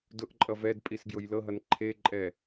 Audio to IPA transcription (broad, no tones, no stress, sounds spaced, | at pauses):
d ʊ ʔ ǃʼ ʌ v ɛ d pʼ i s ɡ j ʊ j l ɤ ɦ ʌ n ǃʰ e ǃʼ ɛ